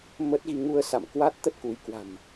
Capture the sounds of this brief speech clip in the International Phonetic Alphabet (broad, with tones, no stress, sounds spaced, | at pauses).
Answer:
m ə˦˥ t̚ ɣ i˧ ŋ u˧ ə̯ s a̰˧˨ m k w a˦˥ t̚ t̪ ə˦˥ t̚ k u˨˦ j k w a̤˨˩ m